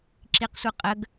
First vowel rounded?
no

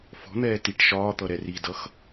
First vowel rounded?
yes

